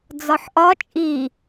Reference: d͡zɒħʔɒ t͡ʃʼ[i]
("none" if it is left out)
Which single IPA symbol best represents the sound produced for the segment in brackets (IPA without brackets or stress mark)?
i